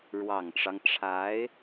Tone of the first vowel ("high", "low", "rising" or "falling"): low